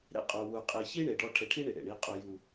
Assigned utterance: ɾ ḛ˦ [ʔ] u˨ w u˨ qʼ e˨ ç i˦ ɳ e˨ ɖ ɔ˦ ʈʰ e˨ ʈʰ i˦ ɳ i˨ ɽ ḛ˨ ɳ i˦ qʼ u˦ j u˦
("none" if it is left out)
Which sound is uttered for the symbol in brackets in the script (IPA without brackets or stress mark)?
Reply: qʼ